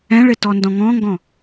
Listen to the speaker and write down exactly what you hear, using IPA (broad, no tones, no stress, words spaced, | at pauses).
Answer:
ɛ̃ɭɪtɔndɔ̃ ŋɔ̃ŋɡɔ̃